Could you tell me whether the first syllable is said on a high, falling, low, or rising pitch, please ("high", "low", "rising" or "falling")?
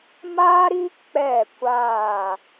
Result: high